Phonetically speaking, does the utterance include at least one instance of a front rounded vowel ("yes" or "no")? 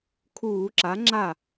no